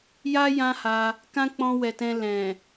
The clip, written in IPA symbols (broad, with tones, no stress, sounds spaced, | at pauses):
j a˦ j ã˦ h a˧ | k ã˦ k͡p ɔ̃˧ w ɛ˨ t ɛ̃˧ l ɛ̃˨